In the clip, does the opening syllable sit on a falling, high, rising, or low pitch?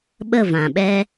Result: falling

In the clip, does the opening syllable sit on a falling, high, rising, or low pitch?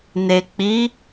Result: low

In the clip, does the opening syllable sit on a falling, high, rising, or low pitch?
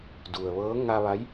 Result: low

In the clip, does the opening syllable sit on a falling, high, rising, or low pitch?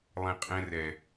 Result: high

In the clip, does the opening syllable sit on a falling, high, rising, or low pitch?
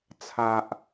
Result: low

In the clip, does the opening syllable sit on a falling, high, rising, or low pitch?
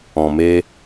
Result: low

